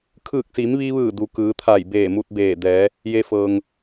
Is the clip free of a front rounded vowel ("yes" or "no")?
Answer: yes